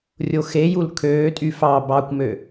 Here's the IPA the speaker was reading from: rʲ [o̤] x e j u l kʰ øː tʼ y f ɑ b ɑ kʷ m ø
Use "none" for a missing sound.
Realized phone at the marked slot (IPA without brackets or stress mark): o